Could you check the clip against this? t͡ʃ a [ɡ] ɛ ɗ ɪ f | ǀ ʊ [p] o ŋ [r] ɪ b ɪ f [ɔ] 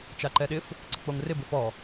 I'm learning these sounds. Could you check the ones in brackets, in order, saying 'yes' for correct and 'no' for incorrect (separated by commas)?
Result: no, no, yes, yes